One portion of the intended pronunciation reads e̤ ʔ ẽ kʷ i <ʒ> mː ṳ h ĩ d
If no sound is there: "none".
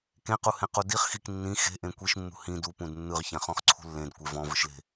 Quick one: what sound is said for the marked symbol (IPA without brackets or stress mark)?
ʃ